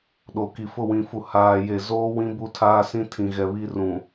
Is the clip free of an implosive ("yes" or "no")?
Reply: no